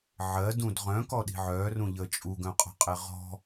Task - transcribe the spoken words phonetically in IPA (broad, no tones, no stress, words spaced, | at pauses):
ʕɜdũd ʁœ̃kɔɗi̤ ʕœrũʎə t͡ʃʼuɡœ̃qʼɔ̤qʼe ʁɔ̤